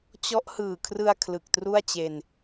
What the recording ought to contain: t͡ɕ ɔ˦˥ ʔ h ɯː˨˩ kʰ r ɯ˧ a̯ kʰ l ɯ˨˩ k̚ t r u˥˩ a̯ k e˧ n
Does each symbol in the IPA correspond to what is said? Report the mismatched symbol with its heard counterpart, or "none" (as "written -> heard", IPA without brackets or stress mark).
k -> t͡ɕ